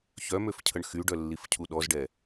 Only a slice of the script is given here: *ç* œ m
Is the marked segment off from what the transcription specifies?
no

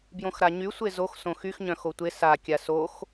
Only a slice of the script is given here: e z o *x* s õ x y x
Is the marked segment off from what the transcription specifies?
no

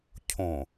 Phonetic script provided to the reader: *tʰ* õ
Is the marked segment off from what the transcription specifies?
yes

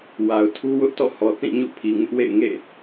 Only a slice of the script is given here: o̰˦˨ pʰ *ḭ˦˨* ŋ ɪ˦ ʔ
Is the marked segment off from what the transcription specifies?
yes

